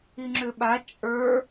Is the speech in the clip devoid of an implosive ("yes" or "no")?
no